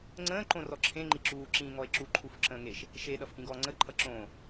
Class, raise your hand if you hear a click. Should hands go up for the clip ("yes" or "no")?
yes